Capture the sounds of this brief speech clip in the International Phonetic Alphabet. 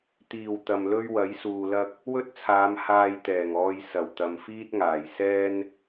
t̪ iː˨˩ w t̪ ɐ˨ m l ɵ˥ ɥ w ɐ˨˥ j s uː˨ l ɐ˥ k̚ | w ɵ˥ t̚ t͡sʰ aː˨˧ m h aː˧ j t̪ ɛː˨˩ ŋ ɔː˧ j s ɐ˨˩ w t̪ ɐ˨ m f iː˥ t̚ ŋ aː˨˩ j s ɛː˥ n

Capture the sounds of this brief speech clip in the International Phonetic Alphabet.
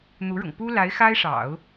n̪ u˧˥ ɻ ʊ̰˨˩ ŋ p u˥ l a˧˥ ɪ̯ x a˥ ɪ̯ ʂ ɑ̰˨˩˦ ʊ̯

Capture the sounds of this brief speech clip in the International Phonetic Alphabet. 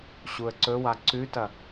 ɕ u ə̯ ǀ ɵ w a ǀ ʉ t ɐ

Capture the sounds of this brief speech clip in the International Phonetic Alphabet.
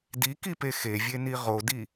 d i k i p e x e vʲ e n i ʁ o d i

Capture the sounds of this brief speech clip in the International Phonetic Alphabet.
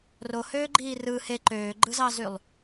r o h øː ɡ͡ǃ iː r ɯ h e ǃ øː ɡ͡ǃ ɯ z ɑ z y lˠ

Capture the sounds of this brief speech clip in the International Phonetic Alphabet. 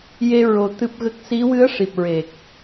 j e˧ ɹ o˧ t̪ ɨ˦˥ p̚ ɣ ə˦˥ k̚ s i˧˥ w ɨ˧˥ ə̯ ʂ i˨˩ p̚ ɹ e˨˩ k̚

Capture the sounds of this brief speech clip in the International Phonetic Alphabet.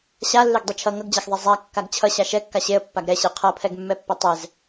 ɕ a lː e ɡ dˤ e t͡ʃʰ ʌ ŋ ʌ ɡ d͡ʑ a x ðˤ ɛ zˤ a kː a ɡ t͡ɕʰ ʌ ɕ a ʃ ɛ kː a ɕ e ə̯ pː a ɡ ɾ ɛ ɕ e qʰ ʌ pʰ ɛ ɡ mː ɛ pː ʌ tˤ ɛ z

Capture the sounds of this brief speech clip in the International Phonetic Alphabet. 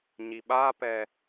ɲ i ɓ a p ɛ

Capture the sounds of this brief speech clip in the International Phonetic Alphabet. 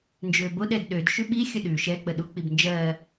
n d͡ʒ øː b o ɗ ɛ d ɗ ø d ʃ ʉ ɓ i xʲ ə ɗ ʉ ʃ ɛ k͡p ə ɗ u k͡p i b n d͡ʒ ɜː

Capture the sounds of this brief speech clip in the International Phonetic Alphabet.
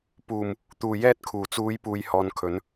p uː˨˩ m | t̪ uː˨˩ j ɛː˧ t̚ kʰ uː˨˩ t͡s uː˨˧ j p uː˨ j h ɔː˨ n kʰ ɵ˨˧ n

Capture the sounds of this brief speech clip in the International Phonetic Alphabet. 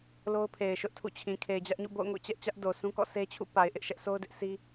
l o˦ ʊ̯ pʰ e˨ ɪ̯ ʃ ʊ˦ ʔ tʰ ṵ˦˨ t͡ɕʰ ĩ˨ kʰ e˨ ɪ̯ d͡ʑ ä˦ ʔ ɲ ṵ˦˨ b o̰˦˨ ʊ̯ ŋ o̰˦˨ t͡ɕ ɛ˦ ʔ t͡ɕ ä˦ ʔ d o˨ sʰ ũ˦ k ɔ̰˦˨ s e˦ t͡ɕʰ ṵ˦˨ p a˨ ɪ̯ ʔ ɪ˦ ʔ ʃ ɛ˦ ʔ s o˦ ʊ̯ d ɪ˦ ʔ s i˦

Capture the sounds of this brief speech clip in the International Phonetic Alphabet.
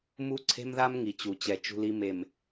m u˦ ǀʰ e̤˦ m ð a˦ m ŋ i˨ t͡ɕ u˨ t͡ɕ ɛ˨ t͡ʃ ṳ˦ l i˦ m e˨ m

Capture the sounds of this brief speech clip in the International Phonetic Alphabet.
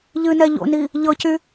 ʎ ɨ n ɛ ʎ o̰ n i | ʎ ɤ c y

